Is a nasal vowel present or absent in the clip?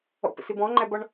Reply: present